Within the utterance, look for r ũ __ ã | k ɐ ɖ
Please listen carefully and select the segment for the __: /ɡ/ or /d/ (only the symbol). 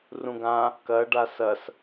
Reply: ɡ